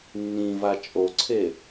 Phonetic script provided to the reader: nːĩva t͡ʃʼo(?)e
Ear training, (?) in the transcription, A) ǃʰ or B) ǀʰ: B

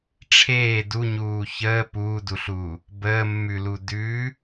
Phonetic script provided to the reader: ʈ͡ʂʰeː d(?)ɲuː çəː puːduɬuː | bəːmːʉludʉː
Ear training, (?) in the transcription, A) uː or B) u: B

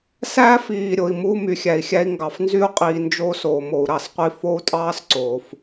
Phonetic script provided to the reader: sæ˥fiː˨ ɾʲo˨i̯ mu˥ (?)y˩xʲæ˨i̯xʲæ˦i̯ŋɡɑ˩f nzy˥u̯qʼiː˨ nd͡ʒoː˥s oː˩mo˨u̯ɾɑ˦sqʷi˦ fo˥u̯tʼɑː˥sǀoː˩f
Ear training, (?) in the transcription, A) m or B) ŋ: A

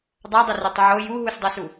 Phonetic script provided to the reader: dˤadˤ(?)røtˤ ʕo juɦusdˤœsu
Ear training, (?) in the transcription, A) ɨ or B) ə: B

